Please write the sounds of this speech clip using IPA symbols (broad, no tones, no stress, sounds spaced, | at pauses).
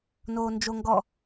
n oː n d͡ʒ o ŋ ɡ ɔ